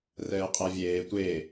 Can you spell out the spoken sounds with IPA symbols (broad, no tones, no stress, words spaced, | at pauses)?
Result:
rɛːqʼɛvʲeː tʷe